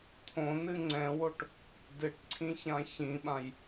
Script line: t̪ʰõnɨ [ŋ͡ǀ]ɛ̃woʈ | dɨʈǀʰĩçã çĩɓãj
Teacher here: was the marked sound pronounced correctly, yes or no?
yes